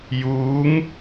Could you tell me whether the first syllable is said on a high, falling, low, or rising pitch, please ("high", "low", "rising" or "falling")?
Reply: rising